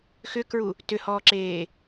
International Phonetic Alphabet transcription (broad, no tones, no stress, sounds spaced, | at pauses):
x ʏ k ɹ u | t ʏ h ɔː ǁ eː